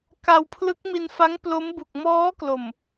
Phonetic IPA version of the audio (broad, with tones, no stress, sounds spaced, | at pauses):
k a˧ w pʰ l ɯ˦˥ k̚ m i˧ n f a˦˥ ŋ p l o˦˥ m b u˨˩ k̚ m ɔː˦˥ k l o˨˩ m